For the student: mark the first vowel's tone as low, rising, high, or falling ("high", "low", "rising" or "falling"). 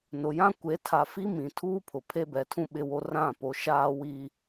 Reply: low